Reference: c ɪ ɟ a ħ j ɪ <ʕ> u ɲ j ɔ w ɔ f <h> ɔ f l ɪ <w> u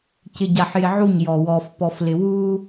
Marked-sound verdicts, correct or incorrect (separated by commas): correct, incorrect, correct